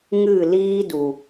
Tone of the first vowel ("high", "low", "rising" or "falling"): falling